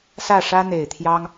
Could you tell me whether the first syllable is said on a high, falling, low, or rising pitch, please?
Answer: falling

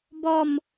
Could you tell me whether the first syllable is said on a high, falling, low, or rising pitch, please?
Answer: falling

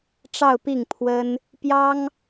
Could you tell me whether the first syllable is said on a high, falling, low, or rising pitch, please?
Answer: falling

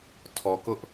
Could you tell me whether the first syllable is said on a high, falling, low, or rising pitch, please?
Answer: low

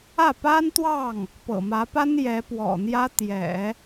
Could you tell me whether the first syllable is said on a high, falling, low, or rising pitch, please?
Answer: falling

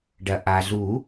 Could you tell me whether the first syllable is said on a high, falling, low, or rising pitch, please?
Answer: low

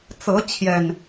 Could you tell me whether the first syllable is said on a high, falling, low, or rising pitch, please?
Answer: rising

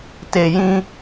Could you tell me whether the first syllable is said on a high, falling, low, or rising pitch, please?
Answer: low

